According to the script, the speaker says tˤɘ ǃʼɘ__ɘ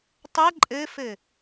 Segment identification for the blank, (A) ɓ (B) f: B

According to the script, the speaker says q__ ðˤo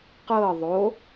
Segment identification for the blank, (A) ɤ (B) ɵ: A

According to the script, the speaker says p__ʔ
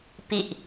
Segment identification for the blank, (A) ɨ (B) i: B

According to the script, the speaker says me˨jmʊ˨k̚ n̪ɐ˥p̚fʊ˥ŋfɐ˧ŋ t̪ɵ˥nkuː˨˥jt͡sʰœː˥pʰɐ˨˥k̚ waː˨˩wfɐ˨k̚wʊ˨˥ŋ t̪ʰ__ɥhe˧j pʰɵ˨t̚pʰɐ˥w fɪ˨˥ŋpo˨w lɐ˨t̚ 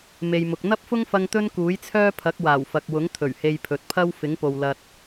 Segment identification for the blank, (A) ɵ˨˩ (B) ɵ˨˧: A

